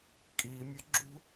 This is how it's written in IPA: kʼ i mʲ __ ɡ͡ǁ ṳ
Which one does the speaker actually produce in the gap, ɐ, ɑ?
ɐ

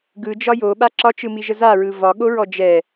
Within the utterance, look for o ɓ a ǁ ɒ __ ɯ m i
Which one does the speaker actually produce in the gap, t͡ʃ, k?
t͡ʃ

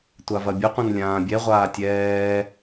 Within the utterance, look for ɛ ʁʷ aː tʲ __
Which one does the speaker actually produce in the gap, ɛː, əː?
ɛː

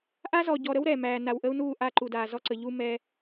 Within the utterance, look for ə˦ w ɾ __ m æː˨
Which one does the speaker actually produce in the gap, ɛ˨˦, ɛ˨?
ɛ˨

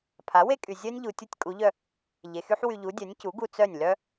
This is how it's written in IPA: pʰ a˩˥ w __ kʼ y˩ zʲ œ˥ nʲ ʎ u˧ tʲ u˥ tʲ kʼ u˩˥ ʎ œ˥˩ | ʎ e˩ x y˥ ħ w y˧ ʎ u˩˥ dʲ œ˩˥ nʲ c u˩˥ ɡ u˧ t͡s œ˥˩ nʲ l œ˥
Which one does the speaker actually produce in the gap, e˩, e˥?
e˥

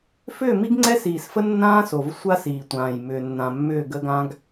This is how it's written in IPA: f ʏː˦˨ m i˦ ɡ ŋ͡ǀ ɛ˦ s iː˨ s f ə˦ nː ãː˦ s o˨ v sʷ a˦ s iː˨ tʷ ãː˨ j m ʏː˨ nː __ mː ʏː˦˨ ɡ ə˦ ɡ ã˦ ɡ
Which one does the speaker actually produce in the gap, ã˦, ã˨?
ã˨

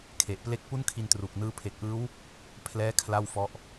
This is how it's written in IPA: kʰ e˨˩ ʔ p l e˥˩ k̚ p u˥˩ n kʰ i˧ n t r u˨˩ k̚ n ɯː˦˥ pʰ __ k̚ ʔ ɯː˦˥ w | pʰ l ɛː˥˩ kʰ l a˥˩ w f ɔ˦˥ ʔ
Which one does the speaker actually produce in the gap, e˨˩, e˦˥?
e˨˩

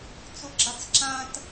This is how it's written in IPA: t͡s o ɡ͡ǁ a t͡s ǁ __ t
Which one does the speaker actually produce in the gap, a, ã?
ã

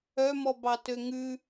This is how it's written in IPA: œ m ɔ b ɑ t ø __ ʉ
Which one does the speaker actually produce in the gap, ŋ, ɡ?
ŋ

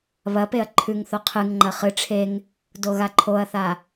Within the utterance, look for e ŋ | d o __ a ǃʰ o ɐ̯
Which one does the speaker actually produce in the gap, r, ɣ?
ɣ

